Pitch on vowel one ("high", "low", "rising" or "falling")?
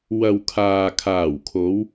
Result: low